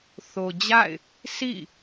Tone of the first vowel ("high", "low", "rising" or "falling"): low